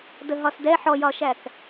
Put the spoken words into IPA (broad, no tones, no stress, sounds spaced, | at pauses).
d ə ɦ ɒ s d ɛ ħ ɔ j ɒ ʃ æ k